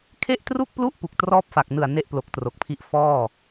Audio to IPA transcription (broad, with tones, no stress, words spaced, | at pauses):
kʰe˥˩ʔtru˥˩k̚plu˥˩ʔ pu˨˩k̚trɔː˥˩p̚fa˨˩k̚nɯ˨˩a̯ ne˥˩ʔplo˨˩k̚tro˨˩k̚pʰi˦˥ʔ fɔː˥˩